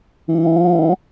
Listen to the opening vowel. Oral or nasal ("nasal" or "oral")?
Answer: nasal